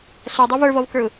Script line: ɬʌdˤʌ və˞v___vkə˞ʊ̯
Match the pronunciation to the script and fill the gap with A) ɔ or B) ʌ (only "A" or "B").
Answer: A